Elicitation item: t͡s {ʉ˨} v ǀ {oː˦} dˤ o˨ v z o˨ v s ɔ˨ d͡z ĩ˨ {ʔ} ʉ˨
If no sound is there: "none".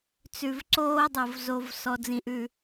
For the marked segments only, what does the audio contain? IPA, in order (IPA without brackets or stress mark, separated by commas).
ʉ˨, oː˦, ʔ